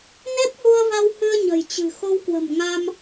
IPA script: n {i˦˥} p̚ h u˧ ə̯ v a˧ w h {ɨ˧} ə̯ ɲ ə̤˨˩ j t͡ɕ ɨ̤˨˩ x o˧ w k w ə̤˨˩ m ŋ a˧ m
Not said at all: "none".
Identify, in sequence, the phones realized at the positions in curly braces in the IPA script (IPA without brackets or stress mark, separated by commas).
e˦˥, ɨ˧